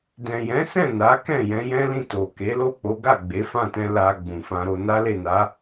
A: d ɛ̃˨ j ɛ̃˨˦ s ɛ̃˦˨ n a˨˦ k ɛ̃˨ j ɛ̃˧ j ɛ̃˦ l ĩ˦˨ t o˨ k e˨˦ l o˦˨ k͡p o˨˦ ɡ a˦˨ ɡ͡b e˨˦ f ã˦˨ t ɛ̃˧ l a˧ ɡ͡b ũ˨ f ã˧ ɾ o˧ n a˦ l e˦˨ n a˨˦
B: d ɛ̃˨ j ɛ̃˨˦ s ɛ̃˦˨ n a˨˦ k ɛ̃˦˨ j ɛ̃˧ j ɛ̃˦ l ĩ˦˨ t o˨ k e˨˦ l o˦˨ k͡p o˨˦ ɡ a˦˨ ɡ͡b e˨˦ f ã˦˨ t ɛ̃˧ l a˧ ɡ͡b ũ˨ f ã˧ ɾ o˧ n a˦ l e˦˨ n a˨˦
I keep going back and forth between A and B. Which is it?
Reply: B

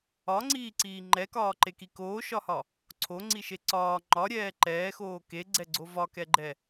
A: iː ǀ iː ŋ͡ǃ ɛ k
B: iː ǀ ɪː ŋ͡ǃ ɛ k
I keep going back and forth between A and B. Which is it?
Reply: A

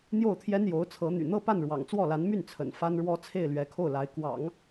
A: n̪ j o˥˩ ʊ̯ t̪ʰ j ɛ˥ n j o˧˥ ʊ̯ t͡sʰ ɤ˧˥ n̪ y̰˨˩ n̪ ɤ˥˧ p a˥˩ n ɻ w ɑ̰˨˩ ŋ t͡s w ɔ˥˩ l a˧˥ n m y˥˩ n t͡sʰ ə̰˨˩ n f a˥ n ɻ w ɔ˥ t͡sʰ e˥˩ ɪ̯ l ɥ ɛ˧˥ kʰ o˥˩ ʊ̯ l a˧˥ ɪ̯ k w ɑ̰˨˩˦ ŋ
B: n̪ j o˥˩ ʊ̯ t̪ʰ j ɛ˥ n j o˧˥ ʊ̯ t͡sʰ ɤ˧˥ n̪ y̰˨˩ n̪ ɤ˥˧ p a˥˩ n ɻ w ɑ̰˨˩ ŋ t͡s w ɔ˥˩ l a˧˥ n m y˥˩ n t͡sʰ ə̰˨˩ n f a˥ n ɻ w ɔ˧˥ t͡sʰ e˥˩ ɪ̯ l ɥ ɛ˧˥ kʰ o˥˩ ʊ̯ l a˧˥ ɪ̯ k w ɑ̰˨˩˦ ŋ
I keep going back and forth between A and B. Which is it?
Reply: A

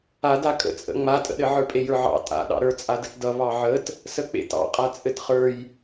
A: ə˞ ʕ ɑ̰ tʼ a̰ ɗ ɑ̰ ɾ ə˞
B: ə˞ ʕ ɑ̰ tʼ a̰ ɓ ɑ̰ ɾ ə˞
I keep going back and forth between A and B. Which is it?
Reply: A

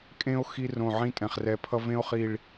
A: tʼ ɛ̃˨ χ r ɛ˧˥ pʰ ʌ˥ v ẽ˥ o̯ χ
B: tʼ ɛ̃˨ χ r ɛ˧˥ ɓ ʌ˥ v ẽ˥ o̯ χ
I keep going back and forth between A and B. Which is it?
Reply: A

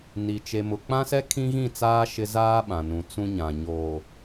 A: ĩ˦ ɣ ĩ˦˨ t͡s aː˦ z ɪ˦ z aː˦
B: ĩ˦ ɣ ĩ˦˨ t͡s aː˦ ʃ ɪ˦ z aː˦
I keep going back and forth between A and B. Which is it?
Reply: B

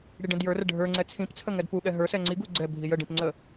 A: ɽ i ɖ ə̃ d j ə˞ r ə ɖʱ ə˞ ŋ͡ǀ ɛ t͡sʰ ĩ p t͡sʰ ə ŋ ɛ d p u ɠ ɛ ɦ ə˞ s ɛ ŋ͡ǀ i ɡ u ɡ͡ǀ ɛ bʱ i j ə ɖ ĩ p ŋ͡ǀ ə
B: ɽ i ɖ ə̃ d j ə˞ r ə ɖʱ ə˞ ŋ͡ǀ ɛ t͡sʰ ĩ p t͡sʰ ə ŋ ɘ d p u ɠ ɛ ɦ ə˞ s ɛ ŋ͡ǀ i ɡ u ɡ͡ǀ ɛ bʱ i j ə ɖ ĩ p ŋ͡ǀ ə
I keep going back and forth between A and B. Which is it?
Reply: A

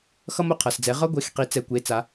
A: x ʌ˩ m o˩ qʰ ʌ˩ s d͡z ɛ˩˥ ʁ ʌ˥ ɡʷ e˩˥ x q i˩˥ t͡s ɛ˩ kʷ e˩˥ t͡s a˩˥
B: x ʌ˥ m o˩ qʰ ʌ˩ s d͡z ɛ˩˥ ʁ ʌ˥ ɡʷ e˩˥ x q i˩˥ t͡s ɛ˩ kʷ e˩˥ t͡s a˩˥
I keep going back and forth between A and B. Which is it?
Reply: B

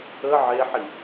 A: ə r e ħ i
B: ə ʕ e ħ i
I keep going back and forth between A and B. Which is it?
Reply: B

